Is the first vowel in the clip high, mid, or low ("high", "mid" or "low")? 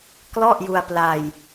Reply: mid